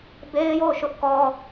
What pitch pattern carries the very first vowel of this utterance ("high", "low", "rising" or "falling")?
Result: high